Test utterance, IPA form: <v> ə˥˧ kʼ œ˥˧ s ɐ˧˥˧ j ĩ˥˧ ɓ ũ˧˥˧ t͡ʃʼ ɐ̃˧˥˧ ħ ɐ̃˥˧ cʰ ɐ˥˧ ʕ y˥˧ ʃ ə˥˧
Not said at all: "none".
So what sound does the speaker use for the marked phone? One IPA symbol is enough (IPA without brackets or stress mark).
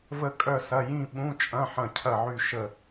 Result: v